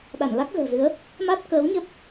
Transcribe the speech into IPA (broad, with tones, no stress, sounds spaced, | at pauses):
ɗ a˧˩ n l a˦˥ k̚ ɣ ə̤ː˨˩ z ɨ˨˦ ə̯ | m a˦˥ t̚ k əː˨˦ w ɲ ə˦˥ p̚